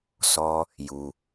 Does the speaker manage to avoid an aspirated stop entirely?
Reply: yes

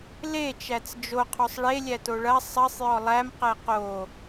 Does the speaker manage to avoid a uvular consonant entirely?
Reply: no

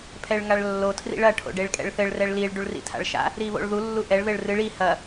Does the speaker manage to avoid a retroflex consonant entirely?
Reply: no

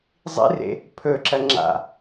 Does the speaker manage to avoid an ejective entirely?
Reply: yes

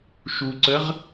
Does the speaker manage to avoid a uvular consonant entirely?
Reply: no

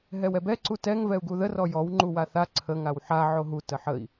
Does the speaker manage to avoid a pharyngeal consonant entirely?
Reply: no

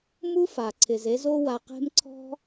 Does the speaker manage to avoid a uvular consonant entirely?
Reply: no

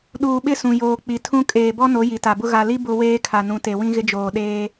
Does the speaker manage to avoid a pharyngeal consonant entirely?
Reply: yes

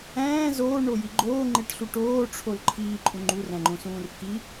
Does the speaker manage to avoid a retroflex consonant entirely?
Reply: no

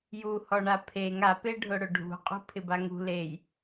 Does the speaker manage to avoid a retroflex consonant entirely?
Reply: no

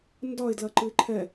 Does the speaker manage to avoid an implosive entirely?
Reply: yes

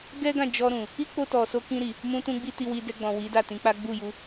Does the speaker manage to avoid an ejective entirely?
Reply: yes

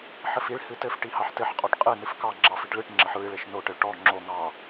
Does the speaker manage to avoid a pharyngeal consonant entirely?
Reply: no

